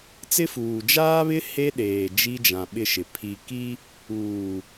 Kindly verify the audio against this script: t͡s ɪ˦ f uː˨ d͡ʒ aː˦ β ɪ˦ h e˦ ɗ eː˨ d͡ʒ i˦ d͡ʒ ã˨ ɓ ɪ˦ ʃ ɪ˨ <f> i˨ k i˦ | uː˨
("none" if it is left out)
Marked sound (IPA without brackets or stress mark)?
pʰ